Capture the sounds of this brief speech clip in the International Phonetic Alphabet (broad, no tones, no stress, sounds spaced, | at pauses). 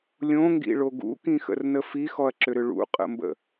lʲ õ ŋ ɡ ḭ ɭ o ɡ ṵ k ĩ x ə̰ r n ə f i x ɔ ɐ̯ ǁ ʏ ɾ ʏ ɭ ṵ qʼ ə̰ m b ə̰